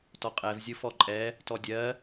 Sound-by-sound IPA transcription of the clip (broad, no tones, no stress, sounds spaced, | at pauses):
t ɔ qʼ ɛ v zʲ ɯ f ɔ ǃʼ ɛ | t ɔ dʲ ɜ